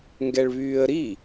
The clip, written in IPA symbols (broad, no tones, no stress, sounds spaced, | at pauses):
ŋ ɡ ɛ ɭ β yː ə̯ ɾ i